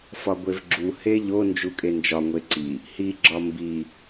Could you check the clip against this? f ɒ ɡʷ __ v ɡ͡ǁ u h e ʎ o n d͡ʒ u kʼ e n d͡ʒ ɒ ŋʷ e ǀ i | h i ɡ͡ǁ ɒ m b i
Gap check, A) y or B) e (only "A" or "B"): B